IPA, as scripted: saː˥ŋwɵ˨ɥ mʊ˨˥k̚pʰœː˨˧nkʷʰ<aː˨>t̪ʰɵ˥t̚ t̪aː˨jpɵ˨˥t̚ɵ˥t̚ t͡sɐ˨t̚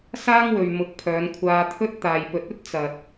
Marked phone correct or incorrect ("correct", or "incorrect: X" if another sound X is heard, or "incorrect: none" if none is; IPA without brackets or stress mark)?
incorrect: aː˧